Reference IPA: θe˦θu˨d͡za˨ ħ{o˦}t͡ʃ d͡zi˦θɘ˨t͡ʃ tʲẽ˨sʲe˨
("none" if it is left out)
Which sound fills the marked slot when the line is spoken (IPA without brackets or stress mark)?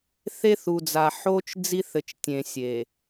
o˦